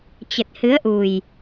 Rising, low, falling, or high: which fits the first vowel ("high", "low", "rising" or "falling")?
low